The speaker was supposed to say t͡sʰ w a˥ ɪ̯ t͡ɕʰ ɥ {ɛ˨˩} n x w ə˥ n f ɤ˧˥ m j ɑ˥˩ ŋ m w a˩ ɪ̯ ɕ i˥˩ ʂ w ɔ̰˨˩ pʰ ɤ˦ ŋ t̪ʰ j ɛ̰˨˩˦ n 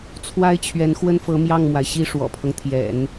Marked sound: incorrect: ɛ˧˥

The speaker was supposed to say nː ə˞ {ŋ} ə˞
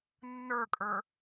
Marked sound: incorrect: kʼ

